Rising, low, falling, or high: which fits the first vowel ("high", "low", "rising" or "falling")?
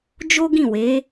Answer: high